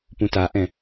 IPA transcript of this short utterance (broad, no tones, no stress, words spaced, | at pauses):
pũtaʔɛ̃